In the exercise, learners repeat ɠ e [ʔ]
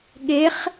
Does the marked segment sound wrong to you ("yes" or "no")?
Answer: yes